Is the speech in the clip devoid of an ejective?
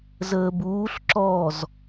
yes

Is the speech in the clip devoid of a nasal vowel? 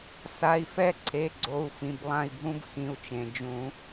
no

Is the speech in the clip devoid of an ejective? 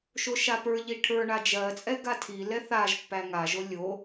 no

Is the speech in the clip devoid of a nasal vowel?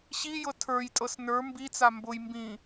no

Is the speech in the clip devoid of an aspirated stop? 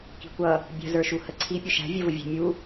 no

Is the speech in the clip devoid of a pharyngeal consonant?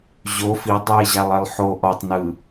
no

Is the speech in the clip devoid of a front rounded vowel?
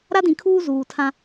yes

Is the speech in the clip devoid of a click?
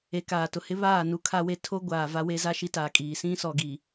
yes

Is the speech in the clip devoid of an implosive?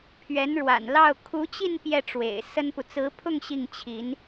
yes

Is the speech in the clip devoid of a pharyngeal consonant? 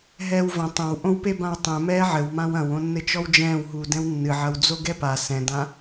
no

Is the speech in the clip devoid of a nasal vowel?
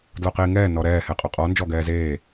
yes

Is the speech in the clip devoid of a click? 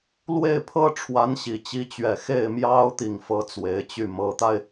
yes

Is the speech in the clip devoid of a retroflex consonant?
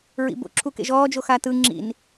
yes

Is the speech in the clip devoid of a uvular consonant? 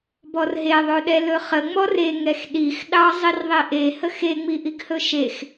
no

